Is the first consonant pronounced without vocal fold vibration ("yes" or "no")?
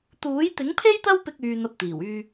yes